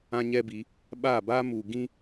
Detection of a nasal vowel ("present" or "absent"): present